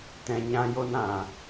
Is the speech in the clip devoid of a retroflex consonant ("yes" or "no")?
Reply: yes